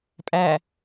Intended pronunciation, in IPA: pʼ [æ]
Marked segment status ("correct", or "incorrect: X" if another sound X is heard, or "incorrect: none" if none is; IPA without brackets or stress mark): correct